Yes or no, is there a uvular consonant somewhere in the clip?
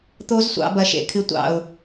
no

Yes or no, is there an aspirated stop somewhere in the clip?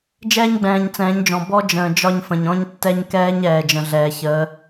no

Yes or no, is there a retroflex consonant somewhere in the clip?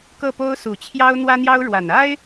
yes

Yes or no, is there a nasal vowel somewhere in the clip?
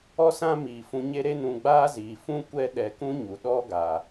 yes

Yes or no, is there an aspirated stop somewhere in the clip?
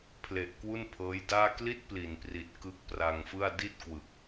yes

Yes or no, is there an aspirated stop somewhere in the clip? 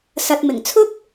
yes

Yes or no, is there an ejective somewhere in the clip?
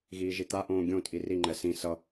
yes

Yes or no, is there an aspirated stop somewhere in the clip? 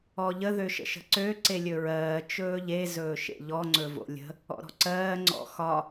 no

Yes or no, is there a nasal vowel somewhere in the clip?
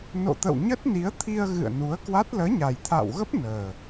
no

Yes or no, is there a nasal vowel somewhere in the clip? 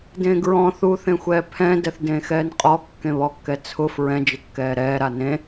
yes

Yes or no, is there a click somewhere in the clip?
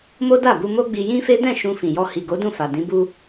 no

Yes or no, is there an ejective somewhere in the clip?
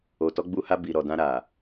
no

